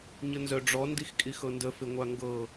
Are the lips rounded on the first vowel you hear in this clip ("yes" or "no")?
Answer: no